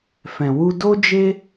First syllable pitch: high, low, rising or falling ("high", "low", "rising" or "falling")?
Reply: low